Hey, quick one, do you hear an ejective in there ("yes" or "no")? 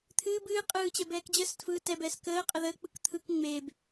yes